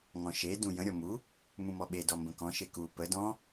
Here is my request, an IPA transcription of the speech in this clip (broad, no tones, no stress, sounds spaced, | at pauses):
ŋ ɔ̃ ʃ e d ũ j ə̃ ɾʲ ɔ m u | m ũ m ɔ ɓ e d ɔ m b ə̃ k ɔ̃ ʃ e k u p ə d ɔ̃